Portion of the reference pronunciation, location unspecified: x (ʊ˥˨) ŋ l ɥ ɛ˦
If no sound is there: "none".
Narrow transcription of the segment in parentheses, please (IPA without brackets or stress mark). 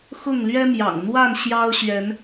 ʊ˥˨